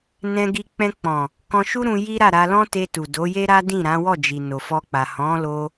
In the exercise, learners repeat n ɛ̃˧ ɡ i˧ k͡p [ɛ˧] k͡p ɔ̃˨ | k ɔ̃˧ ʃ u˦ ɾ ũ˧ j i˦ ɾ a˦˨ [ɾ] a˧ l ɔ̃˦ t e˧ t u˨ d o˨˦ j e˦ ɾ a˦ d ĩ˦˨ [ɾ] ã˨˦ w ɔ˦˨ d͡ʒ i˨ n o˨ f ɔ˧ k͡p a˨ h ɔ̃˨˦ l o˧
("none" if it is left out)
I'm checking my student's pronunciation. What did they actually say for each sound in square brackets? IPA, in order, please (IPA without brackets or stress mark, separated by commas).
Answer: ɛ̃˧, ɾ, ɾ